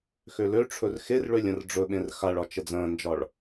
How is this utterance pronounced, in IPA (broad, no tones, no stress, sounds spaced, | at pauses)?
x ø l ø ʈ͡ʂʰ ɵ r x e r ɭ ø lʲ ə̃ r ɖ͡ʐ ɵ ɓ ẽ r x a ɭ ɒ t͡ʃ ə d͡z ə̃ː n d͡ʒ ɒ ɭ